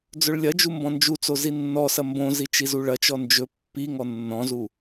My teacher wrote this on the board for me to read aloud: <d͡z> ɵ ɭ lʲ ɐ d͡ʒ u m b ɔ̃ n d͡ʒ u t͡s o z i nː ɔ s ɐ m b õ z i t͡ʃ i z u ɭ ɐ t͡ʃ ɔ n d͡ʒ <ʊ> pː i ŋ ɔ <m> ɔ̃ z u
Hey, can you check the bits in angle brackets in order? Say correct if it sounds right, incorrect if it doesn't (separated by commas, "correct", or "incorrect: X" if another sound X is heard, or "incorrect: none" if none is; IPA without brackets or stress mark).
correct, incorrect: ɵ, incorrect: nː